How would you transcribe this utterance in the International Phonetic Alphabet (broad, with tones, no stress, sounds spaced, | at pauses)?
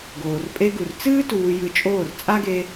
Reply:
ɡ oː˨ r pʼ e˧ ɡ u˨ r t͡s ɨː˦ t uː˧ j ɨ˧ t͡ʃʼ oː˦˨ r t͡sʼ a˦ ɡ e˧